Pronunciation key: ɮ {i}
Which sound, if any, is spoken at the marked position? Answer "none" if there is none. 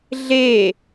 e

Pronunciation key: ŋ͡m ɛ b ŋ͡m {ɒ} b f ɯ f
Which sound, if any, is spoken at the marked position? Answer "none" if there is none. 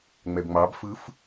ɑ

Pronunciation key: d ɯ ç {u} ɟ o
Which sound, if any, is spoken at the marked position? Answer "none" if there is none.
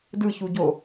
u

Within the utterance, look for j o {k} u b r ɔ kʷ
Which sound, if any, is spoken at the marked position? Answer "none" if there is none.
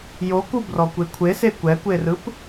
k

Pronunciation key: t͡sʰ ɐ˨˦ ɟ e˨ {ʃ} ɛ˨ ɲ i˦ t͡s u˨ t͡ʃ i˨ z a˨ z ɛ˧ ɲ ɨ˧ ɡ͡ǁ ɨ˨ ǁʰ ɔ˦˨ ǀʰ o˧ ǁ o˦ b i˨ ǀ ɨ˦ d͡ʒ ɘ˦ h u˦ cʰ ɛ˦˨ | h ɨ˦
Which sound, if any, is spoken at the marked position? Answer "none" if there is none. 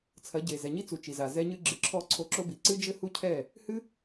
z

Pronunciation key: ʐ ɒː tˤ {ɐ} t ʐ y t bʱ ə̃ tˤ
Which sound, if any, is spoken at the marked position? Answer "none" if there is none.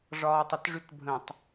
ɐ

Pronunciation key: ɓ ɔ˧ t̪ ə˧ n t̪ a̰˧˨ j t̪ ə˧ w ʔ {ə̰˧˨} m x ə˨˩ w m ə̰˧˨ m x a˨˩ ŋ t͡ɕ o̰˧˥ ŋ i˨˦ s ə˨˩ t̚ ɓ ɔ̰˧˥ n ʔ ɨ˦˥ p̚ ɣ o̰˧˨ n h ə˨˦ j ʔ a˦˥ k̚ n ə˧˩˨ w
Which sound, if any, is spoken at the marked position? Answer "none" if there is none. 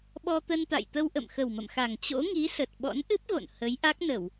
ə̰˧˨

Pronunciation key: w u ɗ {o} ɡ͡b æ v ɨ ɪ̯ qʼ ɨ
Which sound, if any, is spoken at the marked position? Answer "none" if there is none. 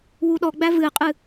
ɔ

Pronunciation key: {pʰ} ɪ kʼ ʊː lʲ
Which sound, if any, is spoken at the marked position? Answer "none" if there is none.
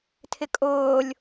tʰ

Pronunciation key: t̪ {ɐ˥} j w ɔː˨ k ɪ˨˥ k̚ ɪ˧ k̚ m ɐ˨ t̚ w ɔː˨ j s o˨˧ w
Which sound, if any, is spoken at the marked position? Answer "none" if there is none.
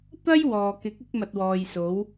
ɐ˥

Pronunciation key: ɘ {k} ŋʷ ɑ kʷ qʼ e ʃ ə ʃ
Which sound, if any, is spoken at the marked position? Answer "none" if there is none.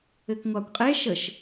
k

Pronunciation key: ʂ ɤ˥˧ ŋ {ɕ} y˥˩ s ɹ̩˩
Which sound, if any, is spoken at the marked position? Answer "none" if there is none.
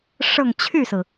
t͡ɕʰ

